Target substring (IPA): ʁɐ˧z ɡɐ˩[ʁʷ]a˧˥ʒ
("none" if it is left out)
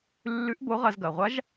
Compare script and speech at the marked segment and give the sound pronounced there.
ʁʷ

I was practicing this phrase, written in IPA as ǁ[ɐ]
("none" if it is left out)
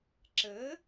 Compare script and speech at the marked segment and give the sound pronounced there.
ə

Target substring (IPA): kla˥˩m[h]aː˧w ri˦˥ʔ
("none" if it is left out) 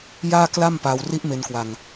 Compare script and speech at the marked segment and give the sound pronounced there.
p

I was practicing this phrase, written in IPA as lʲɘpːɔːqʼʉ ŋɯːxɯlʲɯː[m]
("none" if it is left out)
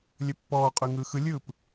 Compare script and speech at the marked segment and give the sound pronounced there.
p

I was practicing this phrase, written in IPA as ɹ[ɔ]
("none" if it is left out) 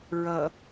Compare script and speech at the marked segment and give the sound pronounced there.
ʌ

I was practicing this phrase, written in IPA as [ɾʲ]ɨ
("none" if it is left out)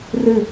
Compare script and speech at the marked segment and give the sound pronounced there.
r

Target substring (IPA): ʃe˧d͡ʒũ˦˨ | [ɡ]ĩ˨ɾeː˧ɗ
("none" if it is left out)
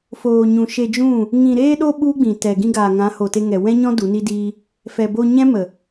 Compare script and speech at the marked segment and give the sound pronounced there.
ŋ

